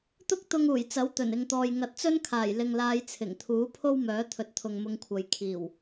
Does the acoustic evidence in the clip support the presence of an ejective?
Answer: no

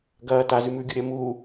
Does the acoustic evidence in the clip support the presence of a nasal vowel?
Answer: no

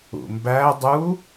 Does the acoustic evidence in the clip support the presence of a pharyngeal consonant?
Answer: no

